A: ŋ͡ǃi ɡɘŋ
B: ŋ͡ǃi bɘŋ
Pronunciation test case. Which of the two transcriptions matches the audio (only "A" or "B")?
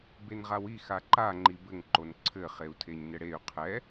B